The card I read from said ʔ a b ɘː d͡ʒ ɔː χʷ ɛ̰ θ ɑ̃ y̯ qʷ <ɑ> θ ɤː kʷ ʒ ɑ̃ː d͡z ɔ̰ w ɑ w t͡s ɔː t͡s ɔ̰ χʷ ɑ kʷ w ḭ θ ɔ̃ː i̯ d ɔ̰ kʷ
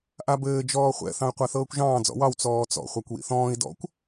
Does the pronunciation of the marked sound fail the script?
yes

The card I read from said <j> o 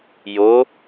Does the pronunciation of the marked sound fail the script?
no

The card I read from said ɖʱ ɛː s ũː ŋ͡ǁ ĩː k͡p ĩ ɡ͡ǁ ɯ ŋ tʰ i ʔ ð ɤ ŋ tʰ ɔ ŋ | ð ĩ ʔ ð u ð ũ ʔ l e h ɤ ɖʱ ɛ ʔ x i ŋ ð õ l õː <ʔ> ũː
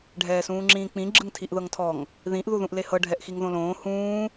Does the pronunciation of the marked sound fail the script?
yes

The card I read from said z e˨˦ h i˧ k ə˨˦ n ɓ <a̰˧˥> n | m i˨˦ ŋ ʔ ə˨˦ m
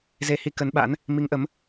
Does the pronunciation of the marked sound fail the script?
no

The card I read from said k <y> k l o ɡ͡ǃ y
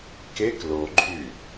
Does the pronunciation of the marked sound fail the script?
yes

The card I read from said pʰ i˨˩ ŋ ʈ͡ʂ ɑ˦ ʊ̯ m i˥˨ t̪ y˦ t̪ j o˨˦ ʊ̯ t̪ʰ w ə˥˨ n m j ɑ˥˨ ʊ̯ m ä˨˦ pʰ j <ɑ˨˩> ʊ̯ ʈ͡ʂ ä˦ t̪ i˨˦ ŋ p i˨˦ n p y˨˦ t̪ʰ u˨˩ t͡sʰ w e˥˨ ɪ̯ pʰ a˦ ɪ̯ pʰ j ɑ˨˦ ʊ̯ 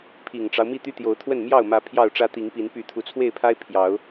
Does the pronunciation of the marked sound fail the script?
yes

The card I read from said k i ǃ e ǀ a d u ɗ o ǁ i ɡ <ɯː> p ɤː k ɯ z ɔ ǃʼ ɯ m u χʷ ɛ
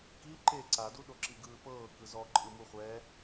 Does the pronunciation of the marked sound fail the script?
no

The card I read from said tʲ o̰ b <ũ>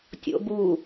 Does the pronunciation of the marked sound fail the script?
yes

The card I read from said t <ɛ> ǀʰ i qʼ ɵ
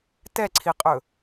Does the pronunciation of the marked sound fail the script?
no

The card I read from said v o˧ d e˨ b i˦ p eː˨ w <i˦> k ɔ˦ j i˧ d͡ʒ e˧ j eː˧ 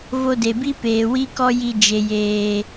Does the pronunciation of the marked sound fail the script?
no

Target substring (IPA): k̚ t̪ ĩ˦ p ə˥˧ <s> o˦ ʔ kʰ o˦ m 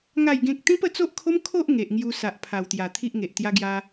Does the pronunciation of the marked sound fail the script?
yes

